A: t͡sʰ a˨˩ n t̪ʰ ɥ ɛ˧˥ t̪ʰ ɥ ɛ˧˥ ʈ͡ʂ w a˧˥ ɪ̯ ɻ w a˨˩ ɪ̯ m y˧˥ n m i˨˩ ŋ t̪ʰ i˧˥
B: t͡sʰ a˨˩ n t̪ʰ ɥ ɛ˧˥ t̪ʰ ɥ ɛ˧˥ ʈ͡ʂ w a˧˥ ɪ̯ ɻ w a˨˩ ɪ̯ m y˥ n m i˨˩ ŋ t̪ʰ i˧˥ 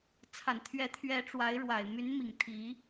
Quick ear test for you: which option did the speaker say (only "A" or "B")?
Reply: A